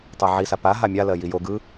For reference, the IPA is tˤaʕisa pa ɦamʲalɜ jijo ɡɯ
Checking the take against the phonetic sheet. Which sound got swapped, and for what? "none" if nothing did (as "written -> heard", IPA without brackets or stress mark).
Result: none